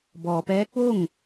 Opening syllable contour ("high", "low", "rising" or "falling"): low